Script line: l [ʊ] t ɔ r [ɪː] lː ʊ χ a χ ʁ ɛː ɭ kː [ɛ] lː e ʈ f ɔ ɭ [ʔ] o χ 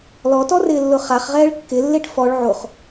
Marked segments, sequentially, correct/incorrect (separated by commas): incorrect, correct, incorrect, incorrect